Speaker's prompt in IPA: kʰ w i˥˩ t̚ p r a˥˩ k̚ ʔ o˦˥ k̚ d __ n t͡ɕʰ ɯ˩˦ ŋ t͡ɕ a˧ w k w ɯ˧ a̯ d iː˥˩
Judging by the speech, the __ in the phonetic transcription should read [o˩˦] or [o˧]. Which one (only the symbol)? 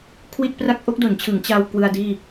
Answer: o˩˦